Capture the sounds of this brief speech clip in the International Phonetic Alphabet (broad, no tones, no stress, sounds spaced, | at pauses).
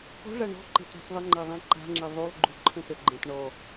k ɔ̤ ʐ a ɳ ɔ̤ ǃ e̤ t a̤ t ðˤ ə ŋ͡ǃ a ðˤ ẽ ǃ a̤ ŋ͡ǁ e ðˤ u lˠ ɡ͡ǃ u ǃʰ ə̃ t ə ɡ͡ǃ ẽ t ɳ ɔ